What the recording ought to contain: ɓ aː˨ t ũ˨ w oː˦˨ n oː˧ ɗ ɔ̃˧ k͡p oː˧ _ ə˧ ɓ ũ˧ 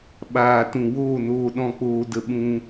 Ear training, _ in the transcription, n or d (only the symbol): d